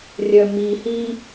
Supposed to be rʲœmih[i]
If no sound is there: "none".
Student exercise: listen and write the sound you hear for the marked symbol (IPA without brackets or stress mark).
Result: i